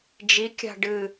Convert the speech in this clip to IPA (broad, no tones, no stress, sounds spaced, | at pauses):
d͡ʒ i kʲ a̤ ɖ ɨ